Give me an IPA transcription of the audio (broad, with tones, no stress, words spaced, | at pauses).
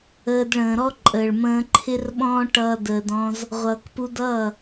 əː˧d ɭə̃ː˨ɾɔ˦ǃʼəː˨ɭ mə̃ː˧ǃʰɪ˦rɓɔ̃ː˦ ʈʌː˦dəː˧dɔ̃˦z | ʁʷʌː˨kpu˧dʌː˦˨